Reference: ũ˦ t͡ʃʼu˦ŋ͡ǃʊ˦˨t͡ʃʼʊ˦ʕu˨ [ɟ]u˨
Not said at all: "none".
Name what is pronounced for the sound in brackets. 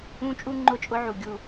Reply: ɡʲ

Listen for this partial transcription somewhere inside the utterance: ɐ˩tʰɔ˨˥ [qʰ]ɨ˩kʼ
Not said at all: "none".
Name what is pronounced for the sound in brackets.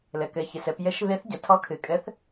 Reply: kʰ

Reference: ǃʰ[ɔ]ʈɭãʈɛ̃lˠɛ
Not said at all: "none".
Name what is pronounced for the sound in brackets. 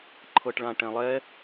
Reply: ɤ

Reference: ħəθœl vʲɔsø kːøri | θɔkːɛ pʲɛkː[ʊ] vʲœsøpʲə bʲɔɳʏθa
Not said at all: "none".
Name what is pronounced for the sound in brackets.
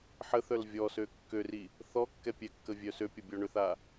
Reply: ə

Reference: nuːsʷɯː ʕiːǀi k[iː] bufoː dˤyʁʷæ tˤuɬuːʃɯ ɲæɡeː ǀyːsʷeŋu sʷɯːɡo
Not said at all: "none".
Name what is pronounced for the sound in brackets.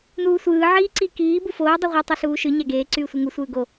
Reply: iː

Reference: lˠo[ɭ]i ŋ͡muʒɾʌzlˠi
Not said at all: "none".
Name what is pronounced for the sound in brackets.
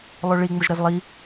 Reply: ɭ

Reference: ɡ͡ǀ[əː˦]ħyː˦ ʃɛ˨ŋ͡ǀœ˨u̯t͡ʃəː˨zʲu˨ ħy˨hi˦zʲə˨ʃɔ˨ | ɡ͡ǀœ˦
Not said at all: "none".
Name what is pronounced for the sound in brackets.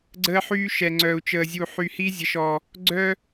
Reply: əː˦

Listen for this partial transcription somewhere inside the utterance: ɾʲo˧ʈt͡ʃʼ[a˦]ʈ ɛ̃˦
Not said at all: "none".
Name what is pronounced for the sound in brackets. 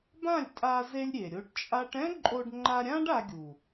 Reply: a˦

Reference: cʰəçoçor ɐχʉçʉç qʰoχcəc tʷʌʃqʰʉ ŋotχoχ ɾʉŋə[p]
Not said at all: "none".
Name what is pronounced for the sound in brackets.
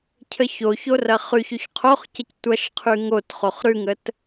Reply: t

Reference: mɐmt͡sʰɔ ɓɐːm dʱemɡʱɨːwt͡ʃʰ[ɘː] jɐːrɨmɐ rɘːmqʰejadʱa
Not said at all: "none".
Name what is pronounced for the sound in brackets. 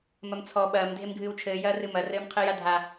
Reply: ɘː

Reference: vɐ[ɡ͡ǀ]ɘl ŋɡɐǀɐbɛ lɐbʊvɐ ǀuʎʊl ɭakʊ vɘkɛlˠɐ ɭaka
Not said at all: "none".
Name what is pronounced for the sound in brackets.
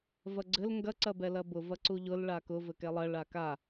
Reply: ɡ͡ǀ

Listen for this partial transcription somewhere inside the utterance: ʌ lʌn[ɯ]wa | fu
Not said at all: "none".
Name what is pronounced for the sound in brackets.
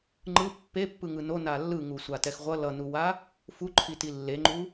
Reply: u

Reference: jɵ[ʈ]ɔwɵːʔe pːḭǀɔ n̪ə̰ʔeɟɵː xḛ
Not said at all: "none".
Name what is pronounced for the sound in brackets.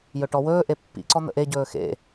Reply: ʈ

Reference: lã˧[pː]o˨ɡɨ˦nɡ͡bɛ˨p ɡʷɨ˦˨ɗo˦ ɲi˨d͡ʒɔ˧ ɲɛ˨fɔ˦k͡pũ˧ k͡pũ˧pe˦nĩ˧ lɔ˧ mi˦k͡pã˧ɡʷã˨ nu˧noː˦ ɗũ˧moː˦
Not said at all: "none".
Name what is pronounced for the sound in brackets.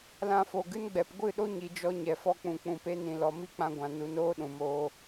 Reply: f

